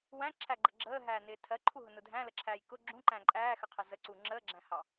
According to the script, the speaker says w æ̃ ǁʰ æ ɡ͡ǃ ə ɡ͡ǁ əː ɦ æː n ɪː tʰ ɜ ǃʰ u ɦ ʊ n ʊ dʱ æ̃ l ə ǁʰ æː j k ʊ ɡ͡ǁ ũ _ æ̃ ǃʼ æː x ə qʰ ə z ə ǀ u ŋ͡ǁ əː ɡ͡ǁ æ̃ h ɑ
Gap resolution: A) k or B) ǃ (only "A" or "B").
B